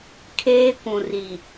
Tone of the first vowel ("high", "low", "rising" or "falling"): high